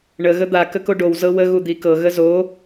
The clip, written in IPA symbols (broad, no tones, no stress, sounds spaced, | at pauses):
ɳ ə ɣ ə d̪ a k ə k o ɖ o w z ɤ w ə ɣ u d̪ i k ɤ ɣ ə z o